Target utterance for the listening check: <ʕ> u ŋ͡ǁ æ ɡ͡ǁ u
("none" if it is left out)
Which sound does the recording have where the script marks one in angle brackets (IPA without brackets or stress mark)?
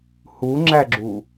h